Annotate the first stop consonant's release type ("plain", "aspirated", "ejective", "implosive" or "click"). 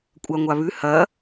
ejective